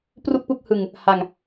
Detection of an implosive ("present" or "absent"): absent